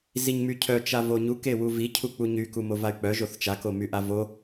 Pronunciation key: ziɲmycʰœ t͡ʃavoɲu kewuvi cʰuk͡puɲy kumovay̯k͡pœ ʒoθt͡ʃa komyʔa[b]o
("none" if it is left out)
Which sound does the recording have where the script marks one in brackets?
v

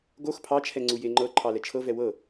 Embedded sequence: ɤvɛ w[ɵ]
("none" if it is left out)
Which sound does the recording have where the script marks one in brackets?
ɤ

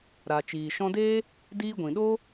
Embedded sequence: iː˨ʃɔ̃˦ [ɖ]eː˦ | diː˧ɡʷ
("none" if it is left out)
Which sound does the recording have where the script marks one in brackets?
d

